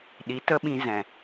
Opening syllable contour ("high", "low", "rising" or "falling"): rising